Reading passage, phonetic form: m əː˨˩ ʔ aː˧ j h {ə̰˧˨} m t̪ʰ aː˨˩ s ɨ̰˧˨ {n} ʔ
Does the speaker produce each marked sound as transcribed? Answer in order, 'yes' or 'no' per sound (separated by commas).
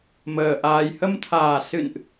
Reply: no, yes